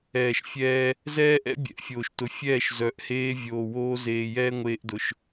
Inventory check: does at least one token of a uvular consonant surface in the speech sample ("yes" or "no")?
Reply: no